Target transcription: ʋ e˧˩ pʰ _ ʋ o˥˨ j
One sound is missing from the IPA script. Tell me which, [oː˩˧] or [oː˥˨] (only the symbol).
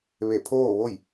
oː˥˨